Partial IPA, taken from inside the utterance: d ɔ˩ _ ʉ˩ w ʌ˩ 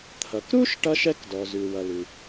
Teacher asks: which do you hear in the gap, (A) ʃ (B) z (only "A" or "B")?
B